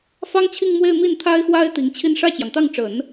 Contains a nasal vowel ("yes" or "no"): no